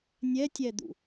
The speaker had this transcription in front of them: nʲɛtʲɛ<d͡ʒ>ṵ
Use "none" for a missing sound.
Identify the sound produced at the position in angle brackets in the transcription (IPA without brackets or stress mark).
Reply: d̪